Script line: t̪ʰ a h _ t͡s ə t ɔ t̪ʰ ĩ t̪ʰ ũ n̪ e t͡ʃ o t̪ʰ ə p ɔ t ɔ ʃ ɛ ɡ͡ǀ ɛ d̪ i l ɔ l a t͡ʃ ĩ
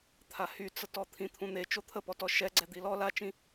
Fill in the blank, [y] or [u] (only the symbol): y